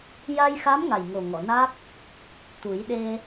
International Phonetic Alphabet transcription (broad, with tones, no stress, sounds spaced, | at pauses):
j a˧ j x a˧˥ m ŋ a˨˩ j ŋ o˨˩ ŋ ɔ˨˩˨ n a˦˥ k̚ | t̪ u˨˩˦ j ɗ e˧